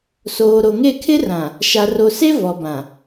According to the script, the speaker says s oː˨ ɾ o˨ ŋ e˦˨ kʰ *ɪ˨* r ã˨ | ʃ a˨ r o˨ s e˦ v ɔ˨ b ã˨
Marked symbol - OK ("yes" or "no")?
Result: no